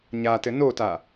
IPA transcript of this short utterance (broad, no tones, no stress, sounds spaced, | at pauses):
ɲ a t ɘ n o t a